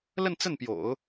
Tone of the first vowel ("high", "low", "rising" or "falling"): falling